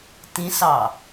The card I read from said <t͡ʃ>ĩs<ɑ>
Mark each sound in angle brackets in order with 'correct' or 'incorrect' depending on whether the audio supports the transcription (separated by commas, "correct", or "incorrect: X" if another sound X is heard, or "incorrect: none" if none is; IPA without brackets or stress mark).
incorrect: t, correct